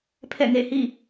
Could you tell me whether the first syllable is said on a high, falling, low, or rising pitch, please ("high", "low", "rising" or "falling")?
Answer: falling